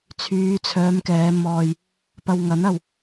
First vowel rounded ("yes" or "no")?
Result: yes